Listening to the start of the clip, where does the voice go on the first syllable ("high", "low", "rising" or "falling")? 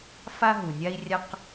high